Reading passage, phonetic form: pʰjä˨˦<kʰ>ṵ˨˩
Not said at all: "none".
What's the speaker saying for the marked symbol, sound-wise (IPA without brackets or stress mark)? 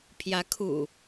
kʰ